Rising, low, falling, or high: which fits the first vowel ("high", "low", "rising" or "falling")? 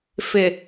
low